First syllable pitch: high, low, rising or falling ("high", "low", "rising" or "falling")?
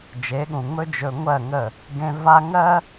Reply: rising